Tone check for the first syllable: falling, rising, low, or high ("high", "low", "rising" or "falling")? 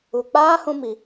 low